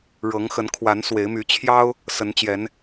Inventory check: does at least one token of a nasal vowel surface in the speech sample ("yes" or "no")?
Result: no